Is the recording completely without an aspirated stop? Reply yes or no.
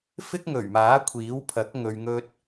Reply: no